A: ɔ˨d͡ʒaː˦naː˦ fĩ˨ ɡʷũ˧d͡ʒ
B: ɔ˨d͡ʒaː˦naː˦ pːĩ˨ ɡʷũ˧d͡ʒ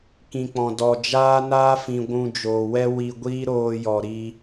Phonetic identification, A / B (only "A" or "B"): A